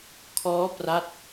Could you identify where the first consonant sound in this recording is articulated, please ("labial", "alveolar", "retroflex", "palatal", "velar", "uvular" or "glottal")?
velar